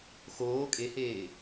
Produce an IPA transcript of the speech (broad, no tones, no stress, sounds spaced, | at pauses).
x oː kʼ e h eː